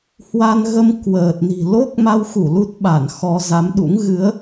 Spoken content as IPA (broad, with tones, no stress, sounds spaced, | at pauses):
h w a˧ n ɣ ə˧ m k w əː˨˩ t̚ n i̤˨˩ l o˦˥ k̚ m a˧ w x u˧˩ l u˦˥ t̚ ɓ a˧˩ n x ɔ˧ z a˨˦ m ɗ ṵ˧˥ ŋ ɣ ɨ˨˦ ə̯